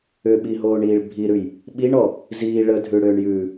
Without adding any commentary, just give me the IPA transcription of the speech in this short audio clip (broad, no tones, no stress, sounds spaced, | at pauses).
ʏ ɓ i ɦ oː ɳ iː ɭ bʱ i ɾ ʉ j | ɓ i ɳ ɔ | z iː ɭ ə dʱ ʉ ɽ ʏː ɳ j ʉ